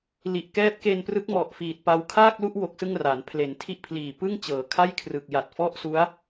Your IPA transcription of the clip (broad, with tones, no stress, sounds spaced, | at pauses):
l i˨˩ ʔ k ɛː˦˥ p̚ k e˧ n p r ɯ˦˥ k̚ m ɔ˨˩ ʔ f iː˨˩ t̚ p a˧ w kʰ aː˥˩ k̚ l u˥˩ ʔ w o˦˥ k̚ s ɯ˥˩ ŋ r aː˩˦ n pʰ l e˩˦ n tʰ i˥˩ ʔ pʰ l iː˨˩ p ɯ˥˩ ŋ t͡ɕ ɤː˩˦ kʰ a˥˩ j kʰ r ɯ˨˩ k̚ j a˨˩ t̚ f ɔ˥˩ ʔ s u˦˥ a̯